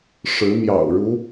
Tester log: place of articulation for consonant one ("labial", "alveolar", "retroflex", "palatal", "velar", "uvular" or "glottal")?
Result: retroflex